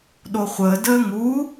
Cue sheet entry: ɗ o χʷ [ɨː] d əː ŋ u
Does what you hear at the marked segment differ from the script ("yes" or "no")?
yes